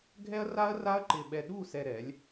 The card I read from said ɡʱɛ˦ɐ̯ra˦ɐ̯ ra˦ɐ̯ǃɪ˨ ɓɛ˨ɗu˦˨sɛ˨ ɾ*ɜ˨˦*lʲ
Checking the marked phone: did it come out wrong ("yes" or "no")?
yes